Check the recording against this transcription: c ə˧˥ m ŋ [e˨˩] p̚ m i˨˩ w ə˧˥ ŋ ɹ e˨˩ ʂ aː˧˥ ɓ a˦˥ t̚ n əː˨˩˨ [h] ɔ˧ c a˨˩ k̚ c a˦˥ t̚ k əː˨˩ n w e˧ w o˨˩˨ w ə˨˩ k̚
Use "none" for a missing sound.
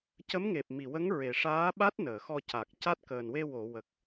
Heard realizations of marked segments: e˨˩, x

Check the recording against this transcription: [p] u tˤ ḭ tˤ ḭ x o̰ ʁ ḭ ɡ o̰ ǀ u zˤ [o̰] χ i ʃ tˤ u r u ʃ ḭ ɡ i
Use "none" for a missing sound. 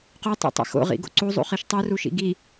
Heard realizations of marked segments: q, ṵ

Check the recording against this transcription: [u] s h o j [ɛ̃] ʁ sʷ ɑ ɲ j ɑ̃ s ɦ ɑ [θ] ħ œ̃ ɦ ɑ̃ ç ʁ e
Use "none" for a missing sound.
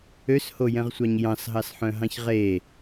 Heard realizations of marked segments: ø, ɛ̃, s

